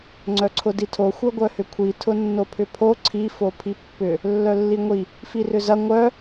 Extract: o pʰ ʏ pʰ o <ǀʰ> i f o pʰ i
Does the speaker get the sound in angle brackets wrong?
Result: no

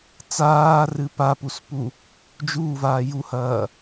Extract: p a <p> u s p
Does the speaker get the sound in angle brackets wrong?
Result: no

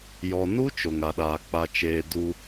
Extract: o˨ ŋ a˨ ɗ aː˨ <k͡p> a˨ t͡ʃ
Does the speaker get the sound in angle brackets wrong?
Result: no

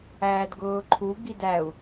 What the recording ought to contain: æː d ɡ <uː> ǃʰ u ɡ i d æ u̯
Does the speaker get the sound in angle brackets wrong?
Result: yes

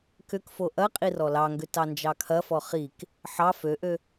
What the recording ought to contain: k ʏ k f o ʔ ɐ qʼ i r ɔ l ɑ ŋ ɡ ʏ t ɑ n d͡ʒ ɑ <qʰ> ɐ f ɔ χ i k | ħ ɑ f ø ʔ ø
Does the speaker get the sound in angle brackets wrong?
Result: yes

